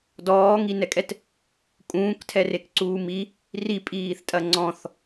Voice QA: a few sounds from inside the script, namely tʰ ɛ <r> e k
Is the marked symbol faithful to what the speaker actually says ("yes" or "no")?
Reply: yes